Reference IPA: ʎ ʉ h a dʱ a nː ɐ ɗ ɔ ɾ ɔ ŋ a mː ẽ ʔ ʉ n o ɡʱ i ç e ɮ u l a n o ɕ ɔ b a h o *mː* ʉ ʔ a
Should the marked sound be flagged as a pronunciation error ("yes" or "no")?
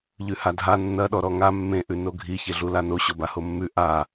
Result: no